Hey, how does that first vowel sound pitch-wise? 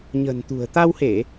low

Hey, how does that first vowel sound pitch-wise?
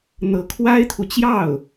rising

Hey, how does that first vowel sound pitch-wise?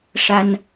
high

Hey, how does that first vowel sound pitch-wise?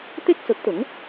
high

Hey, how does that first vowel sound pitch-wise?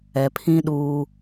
low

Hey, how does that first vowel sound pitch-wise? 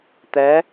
rising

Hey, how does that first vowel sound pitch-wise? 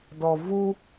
low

